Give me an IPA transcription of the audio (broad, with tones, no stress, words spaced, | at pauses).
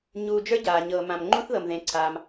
ɲuː˧d͡ʒə˞˦ɟaː˨ ɲɤː˨mã˨mŋ͡ǃũ˦θðɤ˨m ðẽ˧ǀʰaː˧m